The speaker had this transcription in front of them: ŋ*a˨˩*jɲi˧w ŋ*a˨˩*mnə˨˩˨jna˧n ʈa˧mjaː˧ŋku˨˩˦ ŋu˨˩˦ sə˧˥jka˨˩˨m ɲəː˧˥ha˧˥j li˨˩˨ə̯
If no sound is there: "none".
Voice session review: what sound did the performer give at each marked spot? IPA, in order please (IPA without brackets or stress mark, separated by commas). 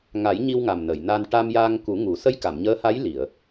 a˨˩˦, a˨˩